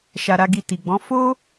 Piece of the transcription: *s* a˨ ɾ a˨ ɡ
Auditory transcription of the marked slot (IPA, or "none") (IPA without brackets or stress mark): ʃ